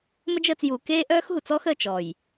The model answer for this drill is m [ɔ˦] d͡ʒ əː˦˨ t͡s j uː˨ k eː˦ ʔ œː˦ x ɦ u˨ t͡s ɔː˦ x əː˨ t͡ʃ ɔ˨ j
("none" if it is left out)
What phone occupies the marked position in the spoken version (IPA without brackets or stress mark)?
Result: ə˦